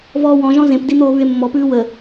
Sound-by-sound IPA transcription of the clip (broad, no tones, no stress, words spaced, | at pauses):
vɔːwɔ̃ʒɔ̃ zẽpdi n̪oːβʉe̯mːɔpʉː wə